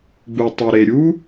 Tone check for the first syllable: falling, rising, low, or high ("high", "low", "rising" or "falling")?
low